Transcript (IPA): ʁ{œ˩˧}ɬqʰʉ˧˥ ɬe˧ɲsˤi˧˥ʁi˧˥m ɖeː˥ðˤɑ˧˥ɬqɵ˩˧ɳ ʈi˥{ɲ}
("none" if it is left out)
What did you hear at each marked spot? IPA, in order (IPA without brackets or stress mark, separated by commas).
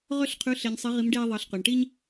œ˥, ɲ